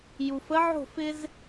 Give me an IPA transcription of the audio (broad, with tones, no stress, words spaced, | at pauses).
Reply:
ju˩fə˧˥ʕo̤˥˨ fɪ˥z